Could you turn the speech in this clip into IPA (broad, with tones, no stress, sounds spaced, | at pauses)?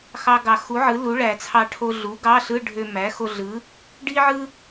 x ɑ˧ ɡ ɑ˨˩˦ x u˩˥ ʕ ɯ˩˥ l u˩˥ ɭ æ˨˩˦ t͡sʰ ɑ˧ ʈʰ o˧ ɮ u˩˥ ɡ ɑ˧˥˧ ɬ ɯ˧˥˧ ɖʱ ø˧ m æ˩˥ x o˧ ɮ ɯ˩˥ | ɖ i˥ ʕ ɯ˥